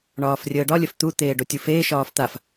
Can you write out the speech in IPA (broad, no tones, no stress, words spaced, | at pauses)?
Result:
ɳɒːfrʲəːɖɒ lʲəft̪u t̪eːɖotʲufeː ʃɒːft̪af